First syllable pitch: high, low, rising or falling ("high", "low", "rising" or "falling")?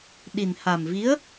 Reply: low